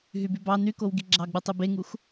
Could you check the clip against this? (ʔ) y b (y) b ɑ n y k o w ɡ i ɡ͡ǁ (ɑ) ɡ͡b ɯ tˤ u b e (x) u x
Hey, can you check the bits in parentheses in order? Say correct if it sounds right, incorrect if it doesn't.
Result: incorrect: ɦ, correct, correct, incorrect: ŋ

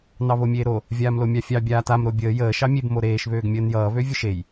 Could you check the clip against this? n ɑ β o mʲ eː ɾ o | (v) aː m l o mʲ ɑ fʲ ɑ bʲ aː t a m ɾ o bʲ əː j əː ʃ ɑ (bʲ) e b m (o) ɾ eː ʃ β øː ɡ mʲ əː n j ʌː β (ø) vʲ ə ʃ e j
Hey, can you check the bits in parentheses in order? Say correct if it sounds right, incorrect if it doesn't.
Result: incorrect: vʲ, incorrect: mʲ, correct, correct

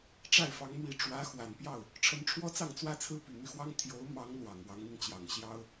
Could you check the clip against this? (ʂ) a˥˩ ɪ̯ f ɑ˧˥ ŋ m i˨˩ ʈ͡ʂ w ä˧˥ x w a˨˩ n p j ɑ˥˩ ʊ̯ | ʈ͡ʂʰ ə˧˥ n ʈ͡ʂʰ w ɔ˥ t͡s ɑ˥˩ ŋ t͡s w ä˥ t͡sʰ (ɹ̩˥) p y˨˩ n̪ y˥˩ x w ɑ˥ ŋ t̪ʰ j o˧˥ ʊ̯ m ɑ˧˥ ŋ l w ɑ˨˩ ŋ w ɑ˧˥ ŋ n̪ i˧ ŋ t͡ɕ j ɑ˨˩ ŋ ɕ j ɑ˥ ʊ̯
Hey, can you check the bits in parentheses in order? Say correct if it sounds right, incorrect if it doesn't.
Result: incorrect: ʈ͡ʂ, correct

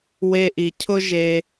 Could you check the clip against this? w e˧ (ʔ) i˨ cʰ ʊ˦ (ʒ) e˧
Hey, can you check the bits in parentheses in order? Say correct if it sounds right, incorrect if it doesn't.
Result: correct, correct

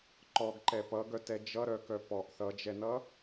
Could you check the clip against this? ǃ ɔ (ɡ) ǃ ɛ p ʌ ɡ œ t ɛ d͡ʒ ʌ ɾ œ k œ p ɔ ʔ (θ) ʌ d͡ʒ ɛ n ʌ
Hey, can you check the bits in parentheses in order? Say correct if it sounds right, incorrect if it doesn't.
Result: correct, correct

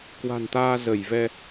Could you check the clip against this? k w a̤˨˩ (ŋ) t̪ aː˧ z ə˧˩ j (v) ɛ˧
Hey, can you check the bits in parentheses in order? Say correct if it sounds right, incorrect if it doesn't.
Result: incorrect: n, correct

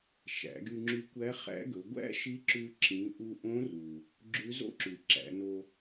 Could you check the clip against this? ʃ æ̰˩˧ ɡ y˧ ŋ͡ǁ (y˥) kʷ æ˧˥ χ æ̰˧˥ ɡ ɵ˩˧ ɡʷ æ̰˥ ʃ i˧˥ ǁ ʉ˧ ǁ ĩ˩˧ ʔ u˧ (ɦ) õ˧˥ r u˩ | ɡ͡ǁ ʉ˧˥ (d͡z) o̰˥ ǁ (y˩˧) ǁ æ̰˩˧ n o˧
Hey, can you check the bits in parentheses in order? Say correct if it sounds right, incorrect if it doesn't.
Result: incorrect: y˧, incorrect: ʔ, incorrect: z, incorrect: y˩

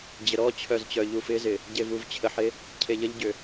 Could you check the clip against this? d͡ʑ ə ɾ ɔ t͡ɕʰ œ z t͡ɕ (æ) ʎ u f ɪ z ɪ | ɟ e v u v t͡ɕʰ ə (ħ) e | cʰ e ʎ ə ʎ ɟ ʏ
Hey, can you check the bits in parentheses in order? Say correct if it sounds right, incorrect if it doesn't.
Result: incorrect: œ, correct

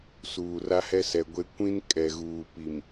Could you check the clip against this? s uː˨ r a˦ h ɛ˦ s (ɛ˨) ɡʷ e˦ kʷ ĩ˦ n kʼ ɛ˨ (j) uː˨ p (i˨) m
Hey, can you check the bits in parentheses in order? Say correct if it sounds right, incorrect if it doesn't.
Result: correct, incorrect: ɣ, correct

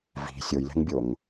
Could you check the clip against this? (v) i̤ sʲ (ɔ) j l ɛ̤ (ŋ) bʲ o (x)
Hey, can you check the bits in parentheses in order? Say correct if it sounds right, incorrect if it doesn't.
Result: correct, incorrect: o, correct, incorrect: ŋ

